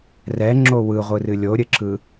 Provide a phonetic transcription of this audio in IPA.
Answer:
rɛŋ͡ǁo wɯʁʷɯrɨ lʲoɾʲɘǁɯ

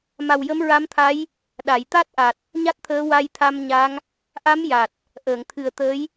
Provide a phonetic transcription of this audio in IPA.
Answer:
ma˨˩wjə˧˥mɹa˧˥mt̪ʰa˧˥j | ɗa˨˩˨jt̪a˦˥t̚ʔa˨˩t̚ | ɲa˦˥t̚t̪ʰəː˧˥ wa˧jt̪ʰa˧mɲa˧˥ŋ | ʔa˧˥mja˨˩t̚ | ʔəː˨˩˨ŋt̪ʰɨ˨˩ə̯t̪ə˧˥j

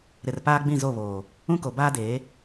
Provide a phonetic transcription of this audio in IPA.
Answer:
ɾɪ˨rpaː˦ ɡ͡bĩ˦˨zo˦˨βoː˨ | ũ˦ko˨baː˦deː˨˦

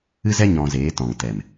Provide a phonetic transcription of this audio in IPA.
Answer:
ɨ˦zɛ˦ ɲɔ̃˧zeː˨˦tɔ̃˨ŋ tɛ˨m

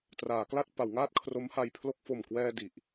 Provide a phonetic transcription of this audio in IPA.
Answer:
traː˩˦kla˥˩t̚ pa˩˦wŋaː˥˩t̚ kʰro˦˥mha˧jpʰlo˥˩k̚ fo˨˩mkwɛː˧ di˨˩ʔ

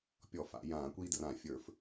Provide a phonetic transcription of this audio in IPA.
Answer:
pʲɔ˧˩˧fa̰˧˩˧jãː˧˩˧kʷiː˦ drã˧˩˧fʲə˞˧˩˧f

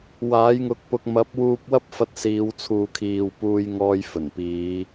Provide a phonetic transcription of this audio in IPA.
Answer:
waː˨˥jŋʊ˧k̚pʊ˧k̚ mɐ˨˥p̚wuː˧p̚wɐ˥p̚fɐ˧t̚ siː˨˧wt͡sʰuː˨kʰiː˨wpuː˧j ŋɔː˧jfɵ˨˩npiː˨˧

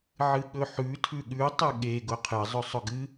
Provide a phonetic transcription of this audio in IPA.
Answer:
ʕɨɠɵħʉ tʰʉɠʉ tˤɨɠe ɡʊqʰɨ zˤɵsˤʊɡɨ

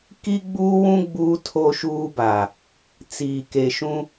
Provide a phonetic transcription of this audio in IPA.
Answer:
ki˦ɡ͡buː˦wũ˦ ɡ͡buː˦ tʰo˦ʃuː˦baː˨ | t͡siː˨ke˨ʃũ˦

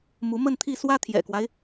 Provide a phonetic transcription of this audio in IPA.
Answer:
mu˧˥mə˥˧nt̪ʰi˥˩ swä˥ t̪ʰjɛ̰˨˩kwa˦ɪ̯

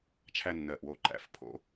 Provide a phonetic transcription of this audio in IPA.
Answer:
t͡ʃʰæ˦nːɜ˨˩ʔ wo˨˩ǃæ̰˨˩˦fpʰo̰˨˦

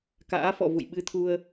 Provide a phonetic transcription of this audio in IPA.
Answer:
ka̰ː˧˥fɔ̰˧˨vṵ˧˨j ɓɨ˧t̪ʰu˧ə̯

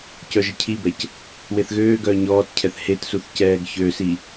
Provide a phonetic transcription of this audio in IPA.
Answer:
cœʒəcʰibɛc | weθɣøːɡœː ɲɔːtcʰɛθ hetsuθ cɛːɡçøsi

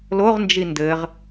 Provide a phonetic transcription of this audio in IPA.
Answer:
loʁnd͡ʒi ndɘʁ

